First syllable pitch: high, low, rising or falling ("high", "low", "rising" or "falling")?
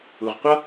low